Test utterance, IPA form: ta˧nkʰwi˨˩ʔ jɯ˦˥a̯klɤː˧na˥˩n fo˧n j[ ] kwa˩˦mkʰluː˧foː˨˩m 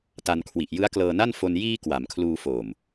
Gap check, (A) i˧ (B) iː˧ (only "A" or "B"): B